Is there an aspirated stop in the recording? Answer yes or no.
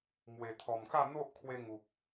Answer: yes